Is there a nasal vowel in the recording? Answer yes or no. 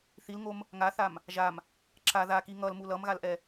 no